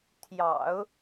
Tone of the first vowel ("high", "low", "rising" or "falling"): low